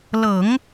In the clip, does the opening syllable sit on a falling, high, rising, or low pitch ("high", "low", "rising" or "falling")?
low